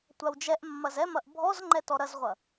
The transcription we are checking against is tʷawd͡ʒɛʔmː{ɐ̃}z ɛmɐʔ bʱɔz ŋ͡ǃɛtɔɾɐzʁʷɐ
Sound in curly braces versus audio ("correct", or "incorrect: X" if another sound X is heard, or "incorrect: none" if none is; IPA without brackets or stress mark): incorrect: ɐ